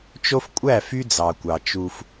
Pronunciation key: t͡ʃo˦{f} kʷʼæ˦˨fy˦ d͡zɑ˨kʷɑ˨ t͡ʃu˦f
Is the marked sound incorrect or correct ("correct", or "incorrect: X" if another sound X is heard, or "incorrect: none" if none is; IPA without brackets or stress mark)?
correct